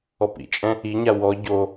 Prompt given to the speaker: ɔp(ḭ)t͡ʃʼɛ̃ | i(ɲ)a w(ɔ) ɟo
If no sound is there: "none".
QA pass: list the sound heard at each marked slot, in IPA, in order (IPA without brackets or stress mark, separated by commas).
ḭ, ɲ, ɔ